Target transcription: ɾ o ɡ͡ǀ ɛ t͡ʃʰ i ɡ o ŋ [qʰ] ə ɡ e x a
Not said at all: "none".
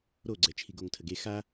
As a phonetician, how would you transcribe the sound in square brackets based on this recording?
tʰ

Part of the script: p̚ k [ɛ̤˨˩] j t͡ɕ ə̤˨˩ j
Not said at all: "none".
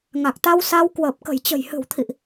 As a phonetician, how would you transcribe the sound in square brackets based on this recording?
ə̤˨˩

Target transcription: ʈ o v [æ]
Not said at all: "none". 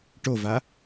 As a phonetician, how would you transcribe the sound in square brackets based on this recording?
a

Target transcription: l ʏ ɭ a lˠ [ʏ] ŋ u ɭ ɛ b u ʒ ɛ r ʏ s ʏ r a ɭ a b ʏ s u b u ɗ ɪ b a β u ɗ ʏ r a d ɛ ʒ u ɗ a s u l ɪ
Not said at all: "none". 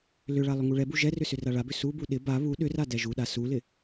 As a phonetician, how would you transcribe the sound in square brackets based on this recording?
ʏ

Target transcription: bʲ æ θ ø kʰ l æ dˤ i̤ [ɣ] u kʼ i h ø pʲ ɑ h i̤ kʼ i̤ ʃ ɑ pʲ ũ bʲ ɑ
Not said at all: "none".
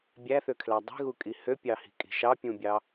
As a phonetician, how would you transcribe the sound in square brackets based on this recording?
ɣ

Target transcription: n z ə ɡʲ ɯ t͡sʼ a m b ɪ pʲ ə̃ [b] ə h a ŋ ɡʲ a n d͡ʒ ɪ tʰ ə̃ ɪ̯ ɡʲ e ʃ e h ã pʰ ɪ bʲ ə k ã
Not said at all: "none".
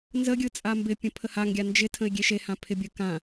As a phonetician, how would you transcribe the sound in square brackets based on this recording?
pʰ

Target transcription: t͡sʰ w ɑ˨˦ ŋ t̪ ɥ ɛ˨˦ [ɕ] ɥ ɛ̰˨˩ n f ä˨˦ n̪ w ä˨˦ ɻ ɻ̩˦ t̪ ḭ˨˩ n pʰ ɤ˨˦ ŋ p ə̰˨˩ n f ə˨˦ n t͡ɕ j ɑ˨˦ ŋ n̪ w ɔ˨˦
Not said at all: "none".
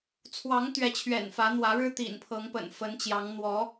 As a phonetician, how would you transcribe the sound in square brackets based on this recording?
t͡ɕʰ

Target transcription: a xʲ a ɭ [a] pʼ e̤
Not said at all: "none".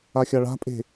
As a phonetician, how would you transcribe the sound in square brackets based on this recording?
a̤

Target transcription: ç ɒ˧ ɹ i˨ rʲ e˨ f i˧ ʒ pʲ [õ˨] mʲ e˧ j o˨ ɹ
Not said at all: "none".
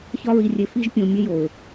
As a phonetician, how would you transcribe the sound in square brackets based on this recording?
õ˨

